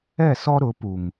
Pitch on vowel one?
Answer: falling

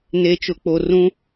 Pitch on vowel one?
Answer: low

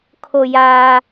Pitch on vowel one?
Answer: low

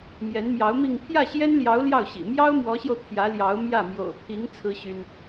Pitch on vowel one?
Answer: rising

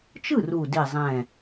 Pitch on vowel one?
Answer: falling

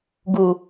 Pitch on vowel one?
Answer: low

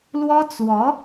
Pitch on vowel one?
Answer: high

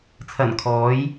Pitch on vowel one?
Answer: low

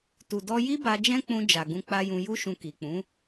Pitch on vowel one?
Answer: low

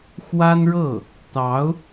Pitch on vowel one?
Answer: high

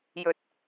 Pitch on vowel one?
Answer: low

